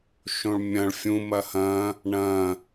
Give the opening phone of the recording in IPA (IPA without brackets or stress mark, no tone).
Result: ʃ